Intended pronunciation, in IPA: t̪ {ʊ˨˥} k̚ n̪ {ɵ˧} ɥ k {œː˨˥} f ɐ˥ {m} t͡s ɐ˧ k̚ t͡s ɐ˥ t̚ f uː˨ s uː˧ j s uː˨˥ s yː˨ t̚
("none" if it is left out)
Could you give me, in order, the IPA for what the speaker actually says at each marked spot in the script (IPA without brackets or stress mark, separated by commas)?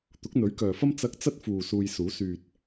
ʊ˨˥, ɵ˨˥, œː˨, m